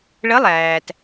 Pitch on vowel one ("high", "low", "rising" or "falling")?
rising